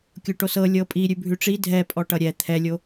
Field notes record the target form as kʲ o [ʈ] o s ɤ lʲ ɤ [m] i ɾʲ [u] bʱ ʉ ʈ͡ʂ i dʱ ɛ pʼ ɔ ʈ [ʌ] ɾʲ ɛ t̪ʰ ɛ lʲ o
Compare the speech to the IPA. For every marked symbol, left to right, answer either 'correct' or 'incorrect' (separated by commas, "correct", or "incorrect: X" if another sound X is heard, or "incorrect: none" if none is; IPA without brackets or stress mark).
correct, incorrect: pʼ, incorrect: ʉ, correct